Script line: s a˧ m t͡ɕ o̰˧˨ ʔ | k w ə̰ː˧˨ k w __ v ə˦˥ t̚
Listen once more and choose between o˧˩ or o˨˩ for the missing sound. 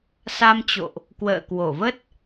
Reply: o˧˩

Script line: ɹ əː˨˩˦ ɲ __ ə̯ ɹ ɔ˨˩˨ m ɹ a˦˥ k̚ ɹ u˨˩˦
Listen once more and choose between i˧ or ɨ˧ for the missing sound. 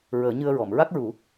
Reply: ɨ˧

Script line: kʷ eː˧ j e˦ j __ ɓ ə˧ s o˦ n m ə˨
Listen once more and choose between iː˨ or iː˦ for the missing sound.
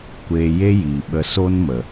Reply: iː˨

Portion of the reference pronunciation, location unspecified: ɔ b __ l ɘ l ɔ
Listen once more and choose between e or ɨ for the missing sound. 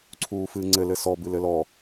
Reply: ɨ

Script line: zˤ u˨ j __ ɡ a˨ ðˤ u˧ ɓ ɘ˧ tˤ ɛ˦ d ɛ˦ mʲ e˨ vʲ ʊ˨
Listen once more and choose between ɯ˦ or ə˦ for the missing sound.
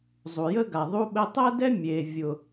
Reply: ə˦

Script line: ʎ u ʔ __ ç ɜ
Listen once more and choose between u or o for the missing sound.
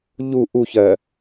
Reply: u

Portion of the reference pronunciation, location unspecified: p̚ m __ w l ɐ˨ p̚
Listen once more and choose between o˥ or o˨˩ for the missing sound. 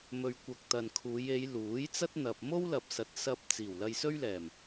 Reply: o˥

